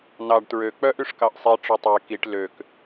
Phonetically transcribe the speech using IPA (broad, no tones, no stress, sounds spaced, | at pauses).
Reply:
n ɑ ɖ t ɹ ø k͡p œ ʔ y ʂ k ɑ ʔ sˤ i ʈ͡ʂ ø tˤ e k i ʈ l ø k